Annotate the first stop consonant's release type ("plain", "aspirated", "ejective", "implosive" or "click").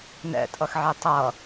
ejective